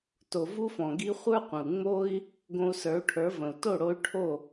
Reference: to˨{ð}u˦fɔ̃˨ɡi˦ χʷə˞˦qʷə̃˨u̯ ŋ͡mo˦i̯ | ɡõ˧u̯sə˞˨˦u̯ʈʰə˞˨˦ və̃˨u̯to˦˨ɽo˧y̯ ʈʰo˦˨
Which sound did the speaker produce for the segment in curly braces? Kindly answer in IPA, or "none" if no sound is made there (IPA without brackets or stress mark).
v